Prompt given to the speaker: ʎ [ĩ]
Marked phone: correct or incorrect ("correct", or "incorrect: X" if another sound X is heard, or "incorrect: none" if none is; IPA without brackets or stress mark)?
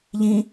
correct